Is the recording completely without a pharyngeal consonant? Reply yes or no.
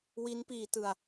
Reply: yes